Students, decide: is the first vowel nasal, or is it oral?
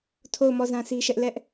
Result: oral